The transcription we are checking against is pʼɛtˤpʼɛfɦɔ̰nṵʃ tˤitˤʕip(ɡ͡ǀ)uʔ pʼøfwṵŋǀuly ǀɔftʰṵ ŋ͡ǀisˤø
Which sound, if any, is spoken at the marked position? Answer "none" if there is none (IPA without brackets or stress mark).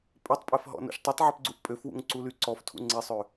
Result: ɡ͡ǀ